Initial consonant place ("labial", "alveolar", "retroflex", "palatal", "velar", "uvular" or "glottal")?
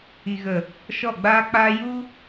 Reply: velar